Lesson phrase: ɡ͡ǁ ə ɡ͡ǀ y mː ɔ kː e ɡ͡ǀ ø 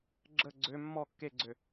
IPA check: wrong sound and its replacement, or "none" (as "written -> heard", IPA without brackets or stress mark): y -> ø